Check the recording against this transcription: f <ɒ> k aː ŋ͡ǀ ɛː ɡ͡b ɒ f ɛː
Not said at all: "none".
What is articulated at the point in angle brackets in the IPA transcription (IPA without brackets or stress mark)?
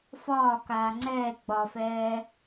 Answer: ɒː